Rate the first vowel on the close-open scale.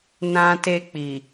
open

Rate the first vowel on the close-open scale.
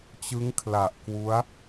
close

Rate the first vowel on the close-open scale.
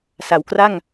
open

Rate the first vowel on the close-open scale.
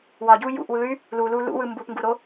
open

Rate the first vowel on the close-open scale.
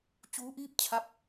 close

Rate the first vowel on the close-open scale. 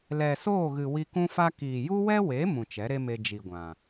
mid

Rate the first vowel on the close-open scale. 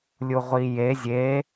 close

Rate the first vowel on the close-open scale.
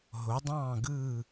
mid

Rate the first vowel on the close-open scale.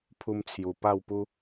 close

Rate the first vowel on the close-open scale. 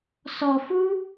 mid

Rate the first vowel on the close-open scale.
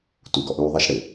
close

